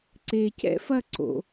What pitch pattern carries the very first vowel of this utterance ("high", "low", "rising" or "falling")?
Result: low